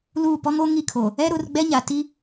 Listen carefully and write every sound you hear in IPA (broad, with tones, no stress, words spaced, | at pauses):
luː˦˨ pɔ˦ŋoː˦ŋi˦˨kʰoː˨ | ɛ˦ɾʊ˨˦r ɡ͡bɛ˦ɲa˨ ti˦